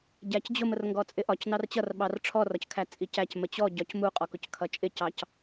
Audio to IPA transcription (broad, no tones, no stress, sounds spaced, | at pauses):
ɟ æ c d͡ʑ ʊ m ə r ŋ ɡ ɔ t͡sʼ ɪ ʔ ɒ c n ɑ r t͡ɕ ʌ r ɓ ɑ r ʈ͡ʂʰ ɔ r ɒ c kʰ æ t͡sʼ i c æ c m ə t͡ɕ ɔ ɟ ɒ c m u qʼ ɔ k ʊ c kʰ ʌ t͡ʃʼ ɪ c ɑ c